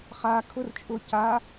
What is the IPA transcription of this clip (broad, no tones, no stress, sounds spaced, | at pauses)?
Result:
χ a kʰ ʊ r t͡ʃʼ ʊ c a